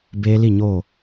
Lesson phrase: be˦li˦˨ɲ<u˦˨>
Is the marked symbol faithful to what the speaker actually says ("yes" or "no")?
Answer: no